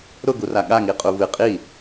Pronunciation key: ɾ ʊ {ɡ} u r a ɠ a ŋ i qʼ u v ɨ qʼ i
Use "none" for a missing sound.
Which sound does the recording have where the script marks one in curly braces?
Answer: ɡ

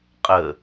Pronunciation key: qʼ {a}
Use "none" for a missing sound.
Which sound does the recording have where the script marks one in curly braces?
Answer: ə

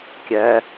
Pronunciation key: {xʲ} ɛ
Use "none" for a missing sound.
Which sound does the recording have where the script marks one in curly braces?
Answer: kʲ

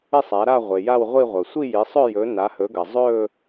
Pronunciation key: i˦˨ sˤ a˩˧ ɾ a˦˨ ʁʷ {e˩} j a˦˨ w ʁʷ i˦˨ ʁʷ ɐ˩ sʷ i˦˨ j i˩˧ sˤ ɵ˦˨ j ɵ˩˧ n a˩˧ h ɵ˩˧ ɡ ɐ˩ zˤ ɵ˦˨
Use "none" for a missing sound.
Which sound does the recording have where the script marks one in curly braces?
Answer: e˩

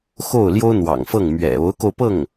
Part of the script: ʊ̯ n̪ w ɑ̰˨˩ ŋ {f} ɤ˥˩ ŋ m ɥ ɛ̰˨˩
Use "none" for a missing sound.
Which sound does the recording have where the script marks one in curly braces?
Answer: f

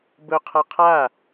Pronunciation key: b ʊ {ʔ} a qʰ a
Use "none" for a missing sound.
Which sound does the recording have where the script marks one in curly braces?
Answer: qʰ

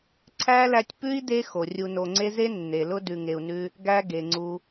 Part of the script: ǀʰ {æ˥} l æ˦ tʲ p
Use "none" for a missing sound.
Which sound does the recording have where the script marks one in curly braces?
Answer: æ˥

